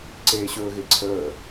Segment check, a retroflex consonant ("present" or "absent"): absent